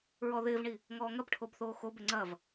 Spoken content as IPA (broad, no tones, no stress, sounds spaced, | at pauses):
ɹ ɔ ð ɪː v ɳ i | ŋ ɔː ŋ ɐ b ʈʰ o b θ oː x o b ɪ ŋ͡ǀ ɐ v